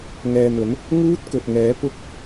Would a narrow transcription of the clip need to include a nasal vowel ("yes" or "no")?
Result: no